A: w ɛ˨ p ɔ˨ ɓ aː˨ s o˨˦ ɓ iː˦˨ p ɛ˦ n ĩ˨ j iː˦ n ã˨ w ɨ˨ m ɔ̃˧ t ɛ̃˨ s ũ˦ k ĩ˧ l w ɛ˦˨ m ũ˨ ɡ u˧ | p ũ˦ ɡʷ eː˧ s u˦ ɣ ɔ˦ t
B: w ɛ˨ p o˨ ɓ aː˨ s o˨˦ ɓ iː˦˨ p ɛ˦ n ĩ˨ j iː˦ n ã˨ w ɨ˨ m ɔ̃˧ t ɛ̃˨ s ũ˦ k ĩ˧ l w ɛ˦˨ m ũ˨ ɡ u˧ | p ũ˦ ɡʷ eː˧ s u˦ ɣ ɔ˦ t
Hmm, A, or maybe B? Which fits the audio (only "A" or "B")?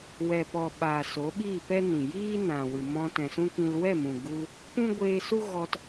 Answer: A